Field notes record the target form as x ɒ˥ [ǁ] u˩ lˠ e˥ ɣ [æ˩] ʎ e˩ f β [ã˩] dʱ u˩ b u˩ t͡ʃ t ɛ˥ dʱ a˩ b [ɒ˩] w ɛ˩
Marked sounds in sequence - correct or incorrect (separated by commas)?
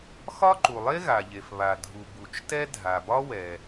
incorrect, incorrect, incorrect, incorrect